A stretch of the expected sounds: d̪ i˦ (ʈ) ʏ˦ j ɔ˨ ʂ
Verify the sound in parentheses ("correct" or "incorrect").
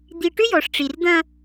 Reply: correct